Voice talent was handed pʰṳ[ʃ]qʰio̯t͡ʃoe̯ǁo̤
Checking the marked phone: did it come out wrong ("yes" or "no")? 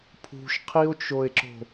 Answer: no